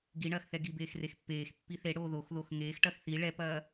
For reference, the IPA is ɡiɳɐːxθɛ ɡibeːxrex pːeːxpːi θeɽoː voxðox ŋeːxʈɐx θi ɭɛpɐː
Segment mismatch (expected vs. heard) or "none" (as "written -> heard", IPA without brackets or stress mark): v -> ð